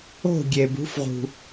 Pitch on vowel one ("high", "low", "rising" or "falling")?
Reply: falling